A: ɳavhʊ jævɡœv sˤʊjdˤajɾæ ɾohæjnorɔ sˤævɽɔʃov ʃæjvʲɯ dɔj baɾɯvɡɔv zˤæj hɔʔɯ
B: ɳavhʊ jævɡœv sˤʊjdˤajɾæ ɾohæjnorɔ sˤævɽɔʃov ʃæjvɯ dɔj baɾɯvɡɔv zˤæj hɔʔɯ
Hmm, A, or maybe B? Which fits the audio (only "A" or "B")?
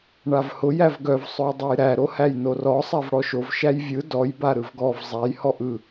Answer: A